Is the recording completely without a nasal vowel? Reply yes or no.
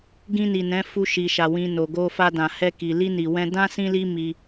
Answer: no